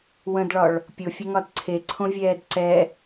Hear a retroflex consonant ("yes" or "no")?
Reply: yes